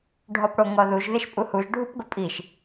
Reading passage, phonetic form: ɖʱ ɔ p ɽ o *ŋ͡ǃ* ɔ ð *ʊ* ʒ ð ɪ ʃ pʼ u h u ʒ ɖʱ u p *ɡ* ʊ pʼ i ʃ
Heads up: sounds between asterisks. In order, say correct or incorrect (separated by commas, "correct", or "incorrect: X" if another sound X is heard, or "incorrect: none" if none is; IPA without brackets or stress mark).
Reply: incorrect: ŋ, incorrect: u, correct